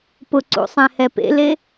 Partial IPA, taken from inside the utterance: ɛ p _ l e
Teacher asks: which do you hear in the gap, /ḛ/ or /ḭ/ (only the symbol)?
ḛ